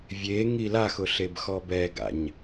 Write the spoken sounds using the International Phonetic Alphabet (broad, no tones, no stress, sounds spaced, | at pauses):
vʲ e ŋ i l a x ʊ ɬ e b x ɔ b ɛ ɡ a̰ ɲ